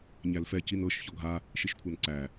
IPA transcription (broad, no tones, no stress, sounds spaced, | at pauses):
ɲ æ l f ɛ c i n ɤ ʃ ç ɔ ɡʱ a | ʃ i ʃ kʷʰ ɤ n ǀ æ